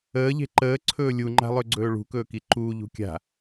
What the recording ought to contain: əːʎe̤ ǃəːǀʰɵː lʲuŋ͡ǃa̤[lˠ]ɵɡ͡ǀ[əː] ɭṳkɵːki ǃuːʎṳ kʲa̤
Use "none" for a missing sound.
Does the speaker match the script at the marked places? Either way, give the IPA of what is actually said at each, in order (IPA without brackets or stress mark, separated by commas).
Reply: lˠ, ɵː